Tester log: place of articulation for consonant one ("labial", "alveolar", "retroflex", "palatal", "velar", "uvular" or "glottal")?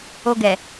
velar